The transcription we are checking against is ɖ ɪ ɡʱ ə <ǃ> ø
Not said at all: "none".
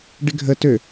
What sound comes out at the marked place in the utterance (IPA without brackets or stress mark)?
t